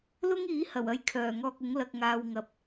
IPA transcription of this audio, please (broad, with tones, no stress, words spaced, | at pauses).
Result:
lʊ˥ŋiː˨˥ hɐ˨˩wɐ˧j kʰœː˨˩ ŋɔː˧k̚ ʊ˨˥ŋ lɐ˧k̚ŋaː˧w ŋɐ˨p̚